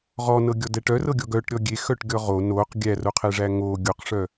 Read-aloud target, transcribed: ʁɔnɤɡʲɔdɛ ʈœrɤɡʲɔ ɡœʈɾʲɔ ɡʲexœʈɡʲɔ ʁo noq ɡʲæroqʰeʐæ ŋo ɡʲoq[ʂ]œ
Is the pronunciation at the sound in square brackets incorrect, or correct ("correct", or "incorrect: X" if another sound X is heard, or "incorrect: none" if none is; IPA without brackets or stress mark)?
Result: correct